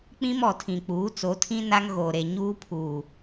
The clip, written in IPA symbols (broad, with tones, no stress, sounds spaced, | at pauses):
k͡p ĩ˦ m ɔ˨ tʰ ĩ˨ k͡p uː˨˦ t͡s o˨˦ tʰ ĩ˦ n a˦ ŋ ɣ oː˨ ɾ e˨ ɲ uː˦ pʰ uː˨